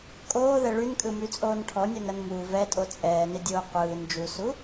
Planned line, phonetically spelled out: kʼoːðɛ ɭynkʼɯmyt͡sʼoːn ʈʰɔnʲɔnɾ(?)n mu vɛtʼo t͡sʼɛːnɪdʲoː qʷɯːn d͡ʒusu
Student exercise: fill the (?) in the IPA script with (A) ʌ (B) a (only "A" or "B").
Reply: A